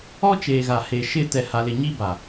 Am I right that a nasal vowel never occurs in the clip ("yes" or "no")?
yes